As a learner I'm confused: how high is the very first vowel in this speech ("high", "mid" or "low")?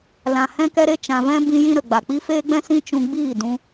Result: low